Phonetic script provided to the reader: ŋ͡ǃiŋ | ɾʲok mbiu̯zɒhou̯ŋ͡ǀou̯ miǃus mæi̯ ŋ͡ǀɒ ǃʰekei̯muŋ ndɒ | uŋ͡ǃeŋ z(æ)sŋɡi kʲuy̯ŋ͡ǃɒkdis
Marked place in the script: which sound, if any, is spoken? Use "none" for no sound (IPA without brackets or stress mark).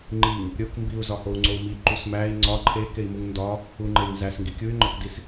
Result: æ